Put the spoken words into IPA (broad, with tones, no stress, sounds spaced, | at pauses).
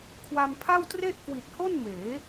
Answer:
kʰ w a˧ m pʰ a˥˩ w t r e˥˩ ʔ k w i˨˩ t̚ h o˥˩ n m eː˩˦